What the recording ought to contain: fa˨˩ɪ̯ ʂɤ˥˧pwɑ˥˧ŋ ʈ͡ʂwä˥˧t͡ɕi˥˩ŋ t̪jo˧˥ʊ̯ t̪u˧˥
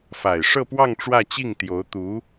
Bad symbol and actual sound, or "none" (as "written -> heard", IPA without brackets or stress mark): none